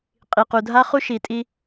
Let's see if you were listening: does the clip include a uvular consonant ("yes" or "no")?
yes